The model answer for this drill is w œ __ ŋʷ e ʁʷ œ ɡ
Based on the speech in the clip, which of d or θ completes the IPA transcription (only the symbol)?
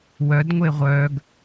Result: d